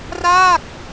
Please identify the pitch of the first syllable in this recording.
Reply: falling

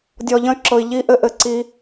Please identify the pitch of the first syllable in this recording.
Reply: low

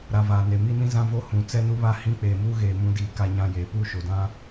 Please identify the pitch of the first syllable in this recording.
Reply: low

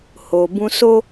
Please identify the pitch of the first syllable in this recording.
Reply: low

